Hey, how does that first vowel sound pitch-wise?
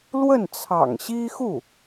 falling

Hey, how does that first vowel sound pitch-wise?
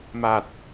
low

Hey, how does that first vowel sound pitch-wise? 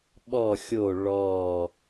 falling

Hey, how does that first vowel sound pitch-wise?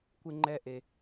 high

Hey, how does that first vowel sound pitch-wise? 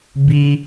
high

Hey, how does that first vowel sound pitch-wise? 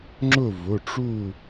falling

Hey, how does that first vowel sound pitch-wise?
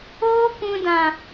high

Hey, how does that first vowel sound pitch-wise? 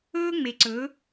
high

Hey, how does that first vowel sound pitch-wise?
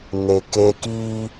low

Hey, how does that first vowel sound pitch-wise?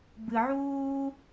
low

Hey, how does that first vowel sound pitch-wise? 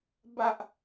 low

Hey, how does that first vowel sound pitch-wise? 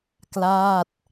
falling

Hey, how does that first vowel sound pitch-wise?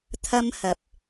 high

